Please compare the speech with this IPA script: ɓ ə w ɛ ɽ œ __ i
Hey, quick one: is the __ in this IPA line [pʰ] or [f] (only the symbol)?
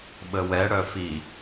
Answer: f